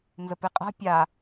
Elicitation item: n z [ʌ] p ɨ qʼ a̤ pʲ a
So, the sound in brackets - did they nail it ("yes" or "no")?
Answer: no